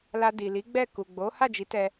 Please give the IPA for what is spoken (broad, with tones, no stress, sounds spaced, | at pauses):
l a˧ d i˨ l i˨˦ ɡ͡b ɛ˦˨ k u˨ ɡ͡b o˨˦ h a˦˨ d͡ʒ i˨˦ t ɛ˧